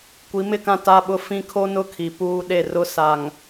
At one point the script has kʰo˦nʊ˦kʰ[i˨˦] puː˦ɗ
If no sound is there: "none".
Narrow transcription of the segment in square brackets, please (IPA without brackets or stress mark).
i˨